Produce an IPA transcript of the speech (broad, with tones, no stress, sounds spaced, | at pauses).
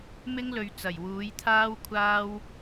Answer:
m ɪ˥ ŋ l ɵ˨ ɥ t͡s ɐ˨˩ j w uː˨˥ j t̪ʰ aː˥ w kʷʰ aː˥ w